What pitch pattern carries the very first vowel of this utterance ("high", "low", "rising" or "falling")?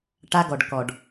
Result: high